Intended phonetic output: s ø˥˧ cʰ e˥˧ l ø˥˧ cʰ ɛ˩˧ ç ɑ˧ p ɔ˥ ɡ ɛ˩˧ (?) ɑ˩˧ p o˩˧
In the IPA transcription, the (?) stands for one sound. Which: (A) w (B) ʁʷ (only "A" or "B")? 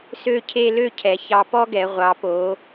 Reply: B